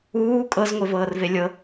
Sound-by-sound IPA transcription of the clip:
uː kʼ ɤ z ŋʷ e v ɤː r v e lʲ ɤ

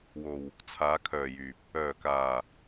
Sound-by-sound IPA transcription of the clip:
w o˧ w | t͡sʰ aː˨˧ kʰ œː˨ j yː˨ p̚ | œː˨ k aː˨

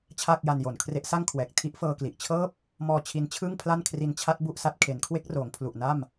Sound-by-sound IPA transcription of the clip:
t͡ɕʰ aː˥˩ k̚ j a˧ n j o˨˩ n kʰ r e˦˥ ʔ s a˥˩ ŋ kʰ w ɛː˨˩ k̚ tʰ i˦˥ ʔ f ɤː˧ k l i˨˩ ʔ t͡ɕʰ ɤː˥˩ p̚ | m ɔː˧ t͡ɕʰ i˦˥ n t͡ɕʰ ɯː˥˩ ŋ pʰ l a˥˩ n kʰ r i˧ n t͡ɕʰ a˦˥ t̚ b u˥˩ ʔ s a˦˥ t̚ kʰ e˩˦ n kʰ w e˦˥ k̚ r oː˩˦ ŋ pʰ l u˨˩ ʔ n a˥˩ m

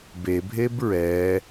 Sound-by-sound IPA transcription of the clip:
b e bʱ e b ɹ ɛ

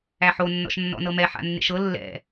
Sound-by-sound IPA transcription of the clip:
æ ħ o nː ɔ̰ ʃ nː ɔ̰ n ɤ m ɛ ħ a̰ nː ḛ ʃ ɤ lː ɛ̰

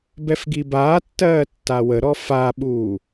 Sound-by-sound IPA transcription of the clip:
b ɛ f ɡ i b aː tː ɜː tː a w ə ɾ ɔ f a ɓ uː

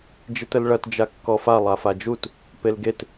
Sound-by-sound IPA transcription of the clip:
d͡ʒ i t ə l ɭ ɐ t d͡ʒ a kː ɔ f a lˠ a f a d͡ʒ u t | p e l ɡ e t

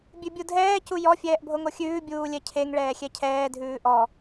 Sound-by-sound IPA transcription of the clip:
bʲ ʉ bʲ u dʱ ɛː c u j ɔ fʲ ɛː ʔ bʱ o ŋ o xʲ ʉː bʲ uː lʲ ɛ cʰ e ŋ ɭ ɛː xʲ ɛ cʰ ɛː dʱ ʉː ʔ ɔ

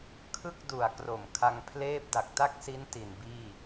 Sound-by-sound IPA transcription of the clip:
kʰ ɯ˥˩ k̚ d u˨˩ a̯ k r o˨˩ m kʰ a˧ ŋ pʰ l eː˥˩ p̚ d a˨˩ k̚ t a˥˩ k̚ s i˦˥ n t i˨˩ n b iː˥˩

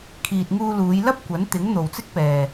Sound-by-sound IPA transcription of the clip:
kʰ iː˨ t̚ ŋ uː˧ l uː˨˧ j l ɐ˥ p̚ kʷ ɐ˨˥ n t̪ ɪ˨˥ ŋ n̪ o˨ w t͡s ɪ˥ k̚ p ɛː˨

